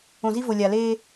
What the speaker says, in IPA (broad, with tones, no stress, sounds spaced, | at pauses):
õ˨ z i˦ v o˨ lʲ a˨ l e˦